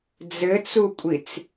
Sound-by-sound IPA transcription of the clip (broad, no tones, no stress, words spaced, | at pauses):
d͡zɘt͡sukʷʼit͡s